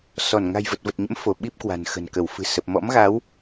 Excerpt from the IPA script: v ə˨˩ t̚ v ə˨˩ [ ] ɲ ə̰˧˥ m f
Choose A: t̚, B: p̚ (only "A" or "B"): A